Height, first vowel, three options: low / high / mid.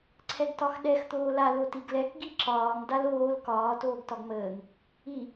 mid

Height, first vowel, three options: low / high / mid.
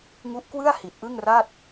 high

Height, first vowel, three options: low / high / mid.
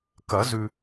low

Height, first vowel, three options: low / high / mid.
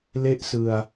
mid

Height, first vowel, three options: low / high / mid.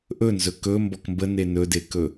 mid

